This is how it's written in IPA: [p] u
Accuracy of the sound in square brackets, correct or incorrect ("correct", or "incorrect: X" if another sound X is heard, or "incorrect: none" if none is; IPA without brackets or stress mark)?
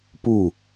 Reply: correct